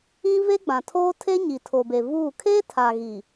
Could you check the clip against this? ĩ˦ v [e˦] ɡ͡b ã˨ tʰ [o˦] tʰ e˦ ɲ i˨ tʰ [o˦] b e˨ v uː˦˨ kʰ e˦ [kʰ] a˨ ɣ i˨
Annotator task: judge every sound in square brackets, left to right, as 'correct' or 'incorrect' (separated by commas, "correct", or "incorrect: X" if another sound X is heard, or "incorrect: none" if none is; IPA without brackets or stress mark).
correct, incorrect: oː˦, incorrect: o˨, incorrect: tʰ